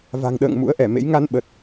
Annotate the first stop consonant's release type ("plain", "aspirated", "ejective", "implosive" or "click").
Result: implosive